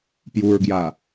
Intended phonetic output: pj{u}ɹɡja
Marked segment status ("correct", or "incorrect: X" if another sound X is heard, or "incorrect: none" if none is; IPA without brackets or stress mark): correct